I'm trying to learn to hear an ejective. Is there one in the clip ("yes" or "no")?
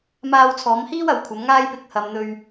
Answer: no